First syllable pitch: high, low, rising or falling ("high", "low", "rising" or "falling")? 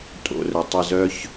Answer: low